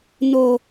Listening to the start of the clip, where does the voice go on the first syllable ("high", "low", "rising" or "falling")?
low